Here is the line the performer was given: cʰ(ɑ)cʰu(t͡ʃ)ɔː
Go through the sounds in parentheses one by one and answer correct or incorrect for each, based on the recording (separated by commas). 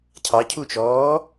correct, correct